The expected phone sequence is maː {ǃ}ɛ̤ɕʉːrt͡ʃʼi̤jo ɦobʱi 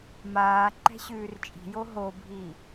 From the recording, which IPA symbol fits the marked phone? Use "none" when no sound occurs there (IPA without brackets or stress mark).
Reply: ǃ